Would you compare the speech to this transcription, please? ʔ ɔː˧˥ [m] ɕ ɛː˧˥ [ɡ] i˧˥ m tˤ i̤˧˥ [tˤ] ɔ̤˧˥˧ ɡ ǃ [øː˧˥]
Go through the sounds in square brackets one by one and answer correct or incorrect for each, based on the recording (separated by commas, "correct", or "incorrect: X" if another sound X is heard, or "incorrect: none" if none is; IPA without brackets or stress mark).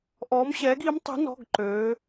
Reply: correct, correct, incorrect: n, correct